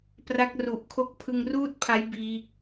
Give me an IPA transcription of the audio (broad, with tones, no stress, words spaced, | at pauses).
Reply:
pra˦˥k̚ru˨˩ʔkʰo˥˩k̚ pʰɯ˧ŋruː˥˩t̚pʰa˦˥j biː˦˥k̚